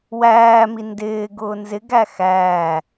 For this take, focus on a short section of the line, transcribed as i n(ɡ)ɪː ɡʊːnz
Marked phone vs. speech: incorrect: d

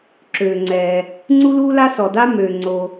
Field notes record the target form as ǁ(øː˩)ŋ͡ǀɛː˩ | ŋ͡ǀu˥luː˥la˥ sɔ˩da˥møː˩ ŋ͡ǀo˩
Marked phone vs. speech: correct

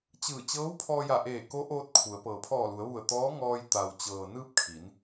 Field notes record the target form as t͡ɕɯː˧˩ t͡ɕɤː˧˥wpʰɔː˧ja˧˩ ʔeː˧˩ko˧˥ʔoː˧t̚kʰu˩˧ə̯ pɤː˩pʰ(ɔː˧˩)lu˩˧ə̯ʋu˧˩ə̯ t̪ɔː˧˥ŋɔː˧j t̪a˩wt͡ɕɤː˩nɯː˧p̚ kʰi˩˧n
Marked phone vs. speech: correct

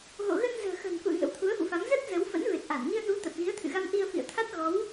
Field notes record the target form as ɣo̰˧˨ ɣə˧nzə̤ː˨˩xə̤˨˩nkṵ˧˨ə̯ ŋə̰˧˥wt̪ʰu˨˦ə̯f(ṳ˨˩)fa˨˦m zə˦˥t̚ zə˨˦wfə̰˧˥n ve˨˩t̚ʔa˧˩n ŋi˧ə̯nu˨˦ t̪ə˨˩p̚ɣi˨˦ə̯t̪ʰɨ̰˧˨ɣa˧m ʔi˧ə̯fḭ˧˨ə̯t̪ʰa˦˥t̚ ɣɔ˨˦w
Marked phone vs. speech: incorrect: ṵ˧˨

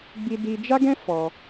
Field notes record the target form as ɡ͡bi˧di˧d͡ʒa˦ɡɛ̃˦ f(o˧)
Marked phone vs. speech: incorrect: ɔ˧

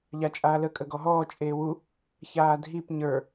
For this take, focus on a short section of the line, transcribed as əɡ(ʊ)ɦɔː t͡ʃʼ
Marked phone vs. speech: incorrect: ɔ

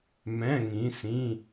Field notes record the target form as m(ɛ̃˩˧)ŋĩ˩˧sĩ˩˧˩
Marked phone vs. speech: incorrect: ɛ̃˩˧˩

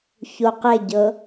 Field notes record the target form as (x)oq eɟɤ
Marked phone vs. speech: incorrect: ç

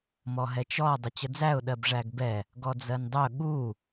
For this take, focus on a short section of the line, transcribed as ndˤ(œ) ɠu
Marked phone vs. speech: correct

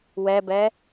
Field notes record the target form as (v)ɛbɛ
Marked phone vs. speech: incorrect: w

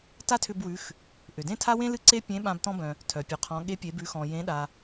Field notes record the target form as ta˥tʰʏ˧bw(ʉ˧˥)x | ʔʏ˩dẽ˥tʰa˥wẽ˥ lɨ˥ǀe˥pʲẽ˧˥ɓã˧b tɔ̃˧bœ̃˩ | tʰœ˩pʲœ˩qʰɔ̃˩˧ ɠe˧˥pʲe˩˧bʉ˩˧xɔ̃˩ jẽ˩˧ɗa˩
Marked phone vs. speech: incorrect: ʉ˩˧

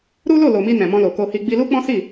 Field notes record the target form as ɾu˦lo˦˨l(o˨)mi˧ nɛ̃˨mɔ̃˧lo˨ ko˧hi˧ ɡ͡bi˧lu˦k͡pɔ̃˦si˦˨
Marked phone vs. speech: correct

